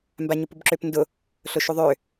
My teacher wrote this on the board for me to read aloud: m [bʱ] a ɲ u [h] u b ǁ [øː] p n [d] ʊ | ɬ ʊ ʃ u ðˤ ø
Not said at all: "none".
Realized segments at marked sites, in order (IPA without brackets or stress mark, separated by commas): b, p, ø, d